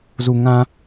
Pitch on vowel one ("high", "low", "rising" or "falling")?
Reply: low